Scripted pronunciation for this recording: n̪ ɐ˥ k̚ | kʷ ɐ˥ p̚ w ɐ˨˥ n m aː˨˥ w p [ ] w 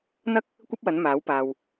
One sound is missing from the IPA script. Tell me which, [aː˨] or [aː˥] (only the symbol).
aː˨